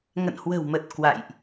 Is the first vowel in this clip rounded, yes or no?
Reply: no